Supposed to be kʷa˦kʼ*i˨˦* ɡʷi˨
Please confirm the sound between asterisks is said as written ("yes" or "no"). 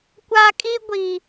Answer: no